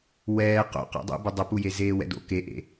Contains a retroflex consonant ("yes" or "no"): no